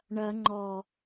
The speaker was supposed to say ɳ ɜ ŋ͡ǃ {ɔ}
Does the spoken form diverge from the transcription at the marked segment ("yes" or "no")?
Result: no